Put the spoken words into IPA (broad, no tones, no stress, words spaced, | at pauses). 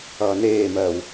ʌːneːmɜːw